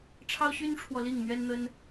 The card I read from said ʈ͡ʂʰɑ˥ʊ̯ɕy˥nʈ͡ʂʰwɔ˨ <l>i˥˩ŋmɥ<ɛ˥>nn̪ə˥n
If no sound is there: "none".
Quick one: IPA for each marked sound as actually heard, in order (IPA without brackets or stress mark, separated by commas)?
l, ɛ˥